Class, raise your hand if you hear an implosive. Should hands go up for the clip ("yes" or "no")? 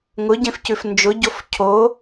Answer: no